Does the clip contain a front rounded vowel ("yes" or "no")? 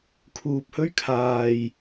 no